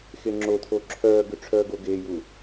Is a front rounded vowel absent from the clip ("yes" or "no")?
no